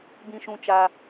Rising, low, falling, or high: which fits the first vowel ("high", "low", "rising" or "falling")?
low